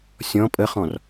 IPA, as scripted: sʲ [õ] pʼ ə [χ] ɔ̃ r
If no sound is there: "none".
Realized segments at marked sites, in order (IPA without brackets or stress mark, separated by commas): ɔ̃, χ